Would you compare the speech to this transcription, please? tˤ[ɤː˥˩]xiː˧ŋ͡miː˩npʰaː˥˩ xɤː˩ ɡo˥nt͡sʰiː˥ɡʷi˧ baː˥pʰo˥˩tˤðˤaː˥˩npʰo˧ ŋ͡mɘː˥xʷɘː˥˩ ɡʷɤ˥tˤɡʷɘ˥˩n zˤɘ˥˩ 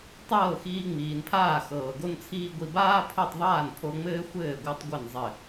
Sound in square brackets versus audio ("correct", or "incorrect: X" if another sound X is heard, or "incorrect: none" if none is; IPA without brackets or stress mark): correct